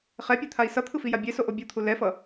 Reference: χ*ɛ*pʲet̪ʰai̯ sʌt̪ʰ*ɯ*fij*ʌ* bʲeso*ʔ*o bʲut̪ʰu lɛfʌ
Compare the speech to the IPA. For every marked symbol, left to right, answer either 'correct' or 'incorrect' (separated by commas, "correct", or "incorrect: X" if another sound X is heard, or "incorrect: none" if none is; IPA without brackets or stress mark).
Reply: correct, correct, incorrect: a, correct